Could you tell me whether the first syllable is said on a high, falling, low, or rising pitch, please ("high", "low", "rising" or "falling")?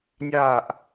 falling